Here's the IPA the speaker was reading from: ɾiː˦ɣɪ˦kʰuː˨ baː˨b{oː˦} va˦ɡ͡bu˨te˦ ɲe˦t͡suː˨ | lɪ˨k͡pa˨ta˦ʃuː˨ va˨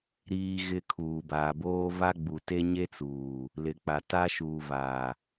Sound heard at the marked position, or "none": oː˦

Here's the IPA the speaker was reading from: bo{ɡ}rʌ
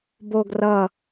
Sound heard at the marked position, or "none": ɡ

